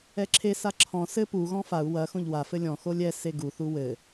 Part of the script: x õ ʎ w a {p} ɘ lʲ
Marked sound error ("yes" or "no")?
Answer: yes